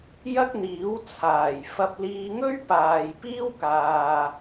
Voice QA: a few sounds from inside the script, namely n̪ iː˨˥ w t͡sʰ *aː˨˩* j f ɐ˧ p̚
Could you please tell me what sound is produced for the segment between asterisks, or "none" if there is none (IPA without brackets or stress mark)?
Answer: aː˨˩